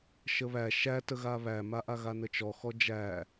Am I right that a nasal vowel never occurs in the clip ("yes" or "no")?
yes